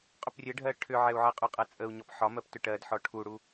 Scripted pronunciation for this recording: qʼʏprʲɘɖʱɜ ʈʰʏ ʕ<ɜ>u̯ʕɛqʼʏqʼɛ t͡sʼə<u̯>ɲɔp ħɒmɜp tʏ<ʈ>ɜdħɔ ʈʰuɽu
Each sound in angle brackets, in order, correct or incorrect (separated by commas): incorrect, correct, correct